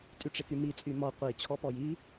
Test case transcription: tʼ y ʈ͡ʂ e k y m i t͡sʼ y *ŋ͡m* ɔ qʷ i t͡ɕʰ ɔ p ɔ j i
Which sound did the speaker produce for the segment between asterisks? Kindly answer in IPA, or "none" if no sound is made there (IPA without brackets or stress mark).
m